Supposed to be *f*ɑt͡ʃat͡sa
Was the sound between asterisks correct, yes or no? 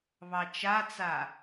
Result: no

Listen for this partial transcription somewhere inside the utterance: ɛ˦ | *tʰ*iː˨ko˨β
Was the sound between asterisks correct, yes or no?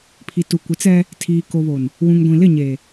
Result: yes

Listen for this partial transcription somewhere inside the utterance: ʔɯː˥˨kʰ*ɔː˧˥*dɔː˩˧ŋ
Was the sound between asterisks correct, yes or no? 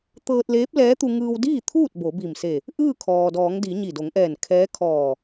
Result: no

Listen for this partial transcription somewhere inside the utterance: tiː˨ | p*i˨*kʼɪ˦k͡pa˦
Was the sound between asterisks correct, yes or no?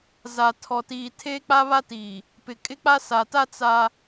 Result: no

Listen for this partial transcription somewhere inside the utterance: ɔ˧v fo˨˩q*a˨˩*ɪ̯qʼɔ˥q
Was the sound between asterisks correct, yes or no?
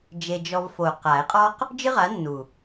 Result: no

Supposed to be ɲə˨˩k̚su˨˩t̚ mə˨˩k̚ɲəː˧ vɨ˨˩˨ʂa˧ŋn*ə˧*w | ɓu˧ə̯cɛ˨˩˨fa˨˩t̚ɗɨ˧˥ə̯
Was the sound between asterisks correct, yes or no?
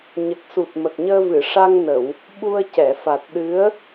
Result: no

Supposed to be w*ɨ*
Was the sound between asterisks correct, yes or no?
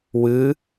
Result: yes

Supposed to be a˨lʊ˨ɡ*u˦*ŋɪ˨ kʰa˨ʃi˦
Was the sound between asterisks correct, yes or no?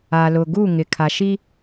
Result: no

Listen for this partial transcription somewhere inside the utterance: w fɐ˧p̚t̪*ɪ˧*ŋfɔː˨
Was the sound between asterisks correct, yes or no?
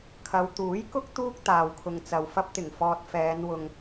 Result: no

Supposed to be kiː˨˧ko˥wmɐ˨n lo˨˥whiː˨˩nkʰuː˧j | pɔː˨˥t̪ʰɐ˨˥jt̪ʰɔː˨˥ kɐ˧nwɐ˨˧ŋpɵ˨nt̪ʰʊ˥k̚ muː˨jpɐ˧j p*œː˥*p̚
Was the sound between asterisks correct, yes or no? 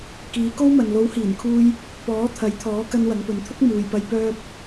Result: yes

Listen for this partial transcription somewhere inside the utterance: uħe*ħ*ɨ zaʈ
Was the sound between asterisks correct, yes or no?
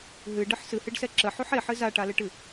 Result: yes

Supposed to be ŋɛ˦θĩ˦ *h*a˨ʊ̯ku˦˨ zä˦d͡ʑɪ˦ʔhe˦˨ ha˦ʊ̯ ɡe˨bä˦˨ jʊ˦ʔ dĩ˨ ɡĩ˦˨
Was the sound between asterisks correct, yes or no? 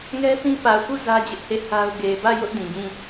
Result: no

